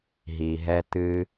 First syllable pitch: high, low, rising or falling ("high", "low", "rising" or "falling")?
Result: low